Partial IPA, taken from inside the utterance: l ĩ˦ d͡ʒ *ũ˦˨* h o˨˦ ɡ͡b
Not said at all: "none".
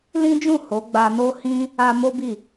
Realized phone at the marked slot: ũ˦˨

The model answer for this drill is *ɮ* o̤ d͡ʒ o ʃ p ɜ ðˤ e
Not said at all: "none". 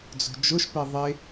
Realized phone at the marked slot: d͡z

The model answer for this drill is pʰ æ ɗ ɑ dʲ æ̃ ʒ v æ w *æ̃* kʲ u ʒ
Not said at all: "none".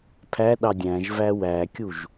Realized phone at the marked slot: æ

